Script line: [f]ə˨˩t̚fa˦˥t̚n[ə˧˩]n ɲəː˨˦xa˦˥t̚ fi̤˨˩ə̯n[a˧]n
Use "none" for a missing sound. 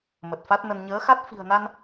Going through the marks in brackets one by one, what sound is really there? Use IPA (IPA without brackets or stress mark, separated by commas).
m, ə˧, a˧